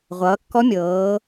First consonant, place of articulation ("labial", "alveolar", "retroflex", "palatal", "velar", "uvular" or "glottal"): uvular